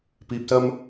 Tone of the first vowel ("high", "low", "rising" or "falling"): low